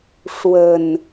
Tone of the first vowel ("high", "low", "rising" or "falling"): low